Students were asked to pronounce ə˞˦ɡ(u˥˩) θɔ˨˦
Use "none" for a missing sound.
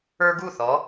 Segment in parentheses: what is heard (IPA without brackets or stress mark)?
u˥˩